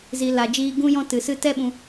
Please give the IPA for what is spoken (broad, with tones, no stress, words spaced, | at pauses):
zi˨ la˨d͡ʒiː˧ ɡũ˧jɔ̃˧tɨ˨sɨ˧ tɛ˦ɓũ˧